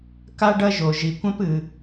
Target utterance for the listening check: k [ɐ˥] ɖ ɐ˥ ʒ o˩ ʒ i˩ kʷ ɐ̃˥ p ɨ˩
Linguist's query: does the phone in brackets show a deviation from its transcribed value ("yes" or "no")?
yes